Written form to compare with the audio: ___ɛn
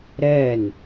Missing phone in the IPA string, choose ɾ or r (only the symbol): ɾ